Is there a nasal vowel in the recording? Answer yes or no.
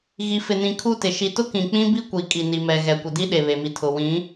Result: yes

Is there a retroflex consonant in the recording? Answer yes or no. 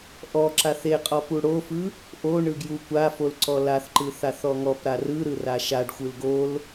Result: yes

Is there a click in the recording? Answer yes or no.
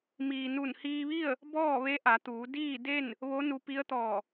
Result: no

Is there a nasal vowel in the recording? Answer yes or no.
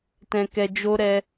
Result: yes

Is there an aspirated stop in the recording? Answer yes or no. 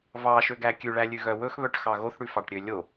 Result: no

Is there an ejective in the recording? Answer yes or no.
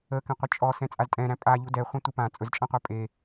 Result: yes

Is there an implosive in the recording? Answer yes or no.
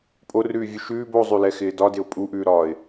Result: no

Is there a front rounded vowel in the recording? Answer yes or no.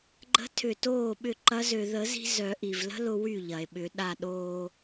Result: yes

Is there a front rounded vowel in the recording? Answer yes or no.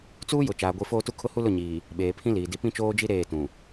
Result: no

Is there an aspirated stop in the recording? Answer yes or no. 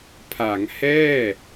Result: yes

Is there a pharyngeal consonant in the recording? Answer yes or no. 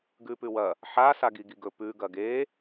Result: yes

